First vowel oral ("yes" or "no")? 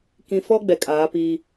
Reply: no